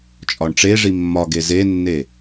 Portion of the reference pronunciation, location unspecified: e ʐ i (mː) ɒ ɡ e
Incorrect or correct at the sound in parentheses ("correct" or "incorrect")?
correct